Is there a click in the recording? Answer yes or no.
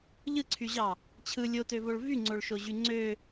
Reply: yes